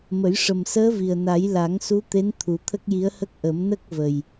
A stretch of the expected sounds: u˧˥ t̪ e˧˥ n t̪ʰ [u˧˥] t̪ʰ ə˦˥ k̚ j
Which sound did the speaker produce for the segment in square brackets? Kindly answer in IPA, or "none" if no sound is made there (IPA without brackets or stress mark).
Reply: u˨˩˦